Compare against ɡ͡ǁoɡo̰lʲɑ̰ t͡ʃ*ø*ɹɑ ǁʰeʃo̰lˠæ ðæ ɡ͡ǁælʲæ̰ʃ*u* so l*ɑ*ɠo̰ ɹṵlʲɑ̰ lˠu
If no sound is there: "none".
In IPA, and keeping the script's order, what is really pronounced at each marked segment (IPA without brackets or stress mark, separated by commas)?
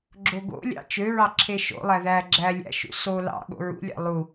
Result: ø, ṵ, ɑ̰